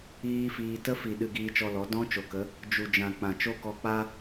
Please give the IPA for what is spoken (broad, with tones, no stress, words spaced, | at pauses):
iː˦fiː˧ tə˦fi˨ ɗɨ˧ɡiː˧t͡ʃɔ˧lɔ˨˦ dɔ̃˦ t͡ʃo˨kə˨˦ | d͡ʒu˨d͡ʒã˨ k͡pã˨t͡ʃo˦kɔ˧k͡pa˦